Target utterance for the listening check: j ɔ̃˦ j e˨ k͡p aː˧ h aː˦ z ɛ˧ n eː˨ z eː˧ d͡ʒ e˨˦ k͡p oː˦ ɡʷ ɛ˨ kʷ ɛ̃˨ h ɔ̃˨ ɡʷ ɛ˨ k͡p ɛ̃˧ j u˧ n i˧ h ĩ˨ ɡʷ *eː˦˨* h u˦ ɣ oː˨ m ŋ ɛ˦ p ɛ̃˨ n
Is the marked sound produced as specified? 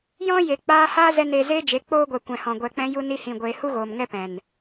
no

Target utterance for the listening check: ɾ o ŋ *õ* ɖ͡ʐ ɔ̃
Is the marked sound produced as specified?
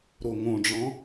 yes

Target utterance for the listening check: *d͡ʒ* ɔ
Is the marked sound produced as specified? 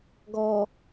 no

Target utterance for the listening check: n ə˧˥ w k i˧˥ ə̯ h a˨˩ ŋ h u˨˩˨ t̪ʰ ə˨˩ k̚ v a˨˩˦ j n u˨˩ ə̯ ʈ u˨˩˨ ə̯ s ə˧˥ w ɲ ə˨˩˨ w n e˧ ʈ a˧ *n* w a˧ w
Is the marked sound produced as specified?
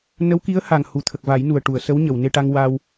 no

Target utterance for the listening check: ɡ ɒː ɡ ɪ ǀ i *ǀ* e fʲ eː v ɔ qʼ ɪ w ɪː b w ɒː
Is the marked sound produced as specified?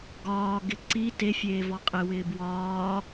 no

